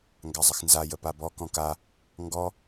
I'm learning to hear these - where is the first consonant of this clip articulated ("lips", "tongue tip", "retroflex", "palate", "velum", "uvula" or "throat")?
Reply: velum